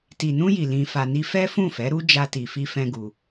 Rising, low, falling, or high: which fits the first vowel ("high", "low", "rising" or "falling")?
low